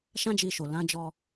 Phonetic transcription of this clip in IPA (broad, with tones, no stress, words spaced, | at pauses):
ʃã˦d͡ʒi˧ʃo˨ lã˨˦d͡ʒɔ˧